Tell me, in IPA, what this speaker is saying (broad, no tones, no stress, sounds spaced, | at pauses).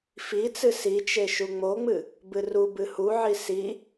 f i t͡s ɨ s i t͡ʃ e ʃ u ŋ͡m o ŋ͡m ɨ | b ɨ r u b ɨ h u ʕ i s i